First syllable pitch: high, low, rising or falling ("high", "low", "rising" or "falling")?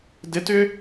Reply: rising